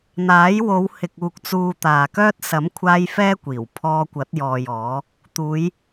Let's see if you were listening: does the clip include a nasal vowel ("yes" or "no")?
no